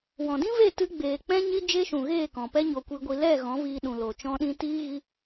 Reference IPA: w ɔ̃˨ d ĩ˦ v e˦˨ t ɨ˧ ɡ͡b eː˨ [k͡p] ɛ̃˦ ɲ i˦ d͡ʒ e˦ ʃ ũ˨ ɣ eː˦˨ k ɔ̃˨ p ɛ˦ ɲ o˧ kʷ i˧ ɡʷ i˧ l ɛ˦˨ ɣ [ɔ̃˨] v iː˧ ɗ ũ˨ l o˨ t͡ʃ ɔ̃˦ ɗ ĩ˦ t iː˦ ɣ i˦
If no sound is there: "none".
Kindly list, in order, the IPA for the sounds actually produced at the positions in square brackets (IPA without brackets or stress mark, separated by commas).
k͡p, ɔ̃˨˦